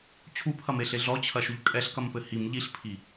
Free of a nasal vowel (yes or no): yes